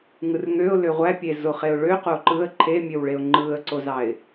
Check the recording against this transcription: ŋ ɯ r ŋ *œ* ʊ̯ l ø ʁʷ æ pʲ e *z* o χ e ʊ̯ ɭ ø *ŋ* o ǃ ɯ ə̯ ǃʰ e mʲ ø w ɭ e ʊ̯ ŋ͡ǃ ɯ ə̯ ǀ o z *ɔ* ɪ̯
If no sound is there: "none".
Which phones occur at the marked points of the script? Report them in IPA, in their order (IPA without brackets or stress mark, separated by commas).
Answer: ø, z, q, ɑ